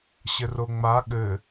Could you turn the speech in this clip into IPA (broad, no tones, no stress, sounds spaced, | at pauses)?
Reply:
ɕ ɘ r o ŋ͡m a ɠ ɘ